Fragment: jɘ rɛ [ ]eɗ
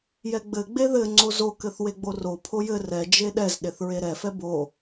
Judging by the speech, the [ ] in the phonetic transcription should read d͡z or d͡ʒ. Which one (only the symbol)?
d͡ʒ